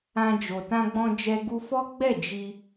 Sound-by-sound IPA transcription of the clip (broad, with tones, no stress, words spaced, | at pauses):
ã˧ d͡ʒo˨tã˧ɡ͡bɔ̃˧d͡ʒɛ˧ ɡu˧fɔ˦ɡ͡bɛ˦˨ d͡ʒi˧